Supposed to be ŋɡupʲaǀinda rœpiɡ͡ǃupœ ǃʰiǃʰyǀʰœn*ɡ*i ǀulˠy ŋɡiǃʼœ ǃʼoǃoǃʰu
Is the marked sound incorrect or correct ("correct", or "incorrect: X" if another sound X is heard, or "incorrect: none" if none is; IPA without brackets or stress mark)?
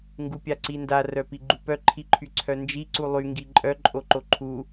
incorrect: d͡ʒ